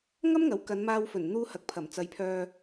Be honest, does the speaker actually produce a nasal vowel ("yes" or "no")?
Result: no